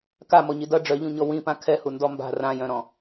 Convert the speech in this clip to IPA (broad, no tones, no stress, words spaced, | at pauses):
kamɔɲi dʌ ɖ͡ʐœʎũɲɔ wĩpã kʰɛhundɔ mba̤ rãjœ̃ɾɔ̃